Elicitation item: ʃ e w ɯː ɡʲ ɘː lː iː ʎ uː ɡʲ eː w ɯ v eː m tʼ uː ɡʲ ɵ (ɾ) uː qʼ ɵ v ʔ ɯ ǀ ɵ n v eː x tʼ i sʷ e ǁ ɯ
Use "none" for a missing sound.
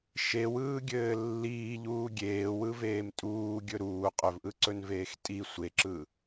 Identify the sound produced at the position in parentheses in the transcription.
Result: ɾ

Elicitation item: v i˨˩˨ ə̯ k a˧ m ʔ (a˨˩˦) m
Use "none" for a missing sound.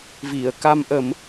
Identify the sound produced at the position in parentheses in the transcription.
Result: ə˨˩˦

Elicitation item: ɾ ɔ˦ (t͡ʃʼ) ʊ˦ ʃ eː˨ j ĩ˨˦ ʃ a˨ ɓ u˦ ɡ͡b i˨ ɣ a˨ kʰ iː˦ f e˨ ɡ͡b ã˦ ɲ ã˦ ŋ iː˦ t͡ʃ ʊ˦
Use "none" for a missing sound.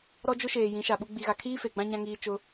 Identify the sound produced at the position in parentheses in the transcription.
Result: d͡ʒ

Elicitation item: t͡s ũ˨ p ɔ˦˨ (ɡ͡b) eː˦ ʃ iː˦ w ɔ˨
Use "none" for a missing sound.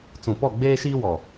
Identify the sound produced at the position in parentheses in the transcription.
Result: ɡ͡b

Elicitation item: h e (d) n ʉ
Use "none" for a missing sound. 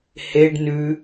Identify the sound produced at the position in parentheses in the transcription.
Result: ɖ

